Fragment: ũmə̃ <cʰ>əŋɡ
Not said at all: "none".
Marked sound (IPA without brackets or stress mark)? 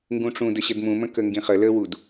k